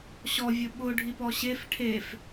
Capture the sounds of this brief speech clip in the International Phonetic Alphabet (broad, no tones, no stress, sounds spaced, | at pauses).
ɕ ɔ vʲ ʊ ɓ ʊ ɖʱ i p ɔ ɕ e f ʈʰ e f